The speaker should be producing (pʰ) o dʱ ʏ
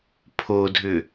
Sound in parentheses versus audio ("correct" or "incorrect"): correct